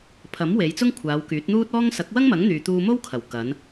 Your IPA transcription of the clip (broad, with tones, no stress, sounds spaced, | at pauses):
pʰ ɐ˨˥ m w e˨˧ j t͡s ʊ˥ ŋ kʷʰ aː˨˧ w k yː˨˥ t̚ n̪ uː˥ t̚ ɔː˥ ŋ s ɐ˨˥ k̚ w ɐ˥ ŋ m ɐ˨˥ ŋ n̪ yː˨ t̪ uː˧ m o˥ w kʰ ɐ˨˩ w k ɐ˨˧ n